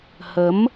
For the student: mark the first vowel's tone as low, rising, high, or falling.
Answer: rising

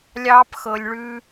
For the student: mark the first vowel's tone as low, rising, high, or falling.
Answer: high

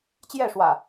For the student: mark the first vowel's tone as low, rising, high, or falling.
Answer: falling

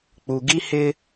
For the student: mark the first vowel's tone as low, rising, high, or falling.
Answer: low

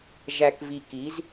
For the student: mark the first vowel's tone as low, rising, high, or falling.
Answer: low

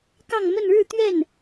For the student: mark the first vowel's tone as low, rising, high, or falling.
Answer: falling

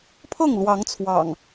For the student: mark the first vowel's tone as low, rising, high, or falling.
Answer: falling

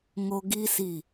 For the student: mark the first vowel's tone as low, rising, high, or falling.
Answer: high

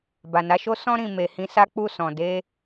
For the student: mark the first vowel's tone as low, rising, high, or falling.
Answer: low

